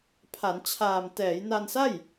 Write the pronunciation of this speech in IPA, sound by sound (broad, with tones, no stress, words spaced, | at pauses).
pʰa˩˦n t͡ɕʰaː˨˩m tɛː˩˦jna˧nsa˥˩j